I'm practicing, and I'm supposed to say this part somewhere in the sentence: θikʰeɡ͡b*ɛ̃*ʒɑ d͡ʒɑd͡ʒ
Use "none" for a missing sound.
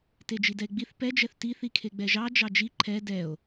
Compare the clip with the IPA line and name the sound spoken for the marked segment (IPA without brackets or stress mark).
ɛ